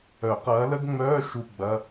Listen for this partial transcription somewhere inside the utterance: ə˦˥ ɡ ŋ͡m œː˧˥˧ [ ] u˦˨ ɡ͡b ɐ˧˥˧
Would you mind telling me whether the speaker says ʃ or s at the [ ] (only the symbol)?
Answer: ʃ